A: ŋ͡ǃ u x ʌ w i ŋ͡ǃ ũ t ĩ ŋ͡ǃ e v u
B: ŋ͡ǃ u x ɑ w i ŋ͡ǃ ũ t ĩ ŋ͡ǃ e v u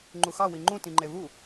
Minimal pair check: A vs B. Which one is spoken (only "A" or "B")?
B